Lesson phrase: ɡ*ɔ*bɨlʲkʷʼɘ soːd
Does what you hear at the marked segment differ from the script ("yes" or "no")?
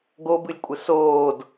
yes